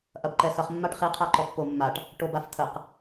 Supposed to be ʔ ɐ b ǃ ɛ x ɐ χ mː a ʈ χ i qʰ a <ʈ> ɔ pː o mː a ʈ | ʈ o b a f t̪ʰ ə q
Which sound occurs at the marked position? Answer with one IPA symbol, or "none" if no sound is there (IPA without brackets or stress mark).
ǃ